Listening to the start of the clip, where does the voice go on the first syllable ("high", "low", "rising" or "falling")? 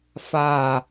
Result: low